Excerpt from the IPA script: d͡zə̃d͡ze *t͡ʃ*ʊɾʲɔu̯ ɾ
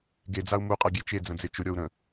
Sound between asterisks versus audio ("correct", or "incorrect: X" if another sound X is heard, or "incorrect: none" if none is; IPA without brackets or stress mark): correct